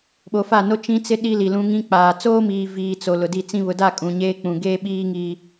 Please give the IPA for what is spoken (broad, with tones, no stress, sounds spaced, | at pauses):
ɓ o˨ f a˦˨ n o˦ t͡ʃ ĩ˦ t͡s ɪ˦ ɗ i˦ l i˨ l ũ˦ ŋ ĩ˦ k͡p aː˨ t͡s oː˦ m iː˨ v iː˨ t͡s o˨ l ʊ˨ d i˦˨ t͡s ĩ˦ β ʊ˨ d a˦˨ kʼ ũ˨ ɲ eː˦ k͡p ũ˨ ɡ eː˦ ɓ iː˦ ŋ iː˦